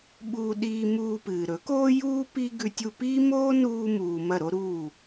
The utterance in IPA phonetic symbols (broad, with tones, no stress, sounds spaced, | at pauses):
ɓ uː˧ ɗ iː˧ m uː˧ p ɨː˨ ɾ ɵ˨˦ k oː˦ j uː˦ p i˦ ɡ ʉ˧ tʲ u˧ p iː˦ m oː˦ n uː˧ m uː˨ m ɐ˦˨ ɾ o˦ ɾ uː˦˨